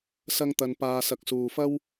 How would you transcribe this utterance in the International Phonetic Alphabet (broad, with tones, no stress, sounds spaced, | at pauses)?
s ɐ˧ ŋ t̪ ɐ˨ n p aː˨ s ɐ˨ k̚ s uː˨ f ɐ˥ w